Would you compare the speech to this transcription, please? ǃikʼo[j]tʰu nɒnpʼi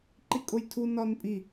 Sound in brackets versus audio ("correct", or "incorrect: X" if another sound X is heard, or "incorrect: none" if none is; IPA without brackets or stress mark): correct